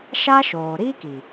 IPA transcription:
ʃa˦ʃoː˨ɾiː˦ki˨

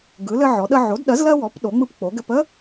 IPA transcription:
ɡɯ˩˥lɘ˦ʕɔ˩˥ɗə˦ ʕo˩˥dɗɜ˩˥z lɜ˦wɔ˩˥p ɗo˩˥ŋ͡mɯ˦pk͡po˩˥ɡɘ˦p ə˦

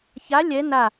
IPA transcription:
ça lʲɛ na

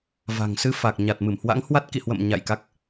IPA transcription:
va̤˨˩ŋsɨ˧fa˨˩k̚ ɲa˨˩t̚mɨ˧˩mhwa̰˧˥ŋhwa˦˥t̚ kḭ˧˨hwə̰˧˨m ɲa̰˧˨j ka˦˥k̚

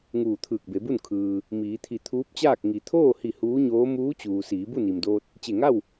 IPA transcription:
ŋuː˧˩t̪ʰɯː˧˩k̚be˩˧bu˥˨n kʰɯː˩ | miː˩˧t̪ʰi˧˩ t̪ʰuː˧˥p̚t͡ɕaː˥˨k̚ ŋi˩˧t̪ʰoː˥˨hi˧˩ huː˧˥ɲoː˧˥ muː˧˥t͡ɕuː˩ siː˩˧bu˥˨ni˩mdoː˧t̚ | t͡ɕe˧˩ŋa˥˨w

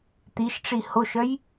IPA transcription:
t̪iʃʈ͡ʂi hoʃœj

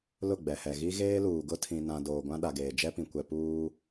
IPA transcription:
lʊ˦˨ɡ͡bɛ˨hɛ˨ ɣi˦ɣeː˦luː˨ɡʊ˦ tʰĩ˨nã˨ doː˨ɡʷã˦ ɗa˨ɡeː˨ d͡ʒɛ˦pĩ˨ kʷɛ˨ puː˦

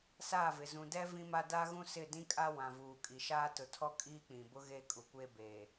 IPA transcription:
saː˦˨vɪ˨ zũ˨dɛ˦ vĩ˦ma˦ daː˦ɣũ˦ sɪ˦˨dĩ˦kʼa˦ wã˨vuː˨ kʼi˨ʃaː˦ tʊ˨tʰɔ˦ kʼiː˦k͡pĩ˨bʊ˦ ɣe˦kʼu˨kʷe˦beː˨

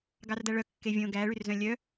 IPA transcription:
ɡɑrdæɭœ kːevʲõ ɡæɭyrzœ̃ lʲœ

